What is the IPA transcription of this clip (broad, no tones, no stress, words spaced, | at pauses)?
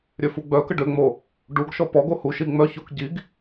ɾʲøfuɡ͡bœkə ɖøŋ͡mo | ɖuɡʃɔ pɔɡo huʃi ŋ͡mœçok ɟiɡ